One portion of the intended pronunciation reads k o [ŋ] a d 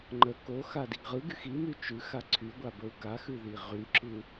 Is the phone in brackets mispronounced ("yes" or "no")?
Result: yes